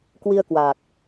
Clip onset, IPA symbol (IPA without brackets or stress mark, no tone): k